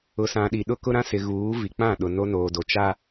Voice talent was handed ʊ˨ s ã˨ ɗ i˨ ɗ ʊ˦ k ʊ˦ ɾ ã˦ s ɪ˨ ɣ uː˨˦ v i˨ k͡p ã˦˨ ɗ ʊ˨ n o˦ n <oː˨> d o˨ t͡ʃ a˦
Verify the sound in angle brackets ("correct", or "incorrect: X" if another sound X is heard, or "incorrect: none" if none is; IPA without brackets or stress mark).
correct